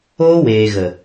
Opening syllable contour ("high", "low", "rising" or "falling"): high